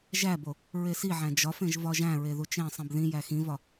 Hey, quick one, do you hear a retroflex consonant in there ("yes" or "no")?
no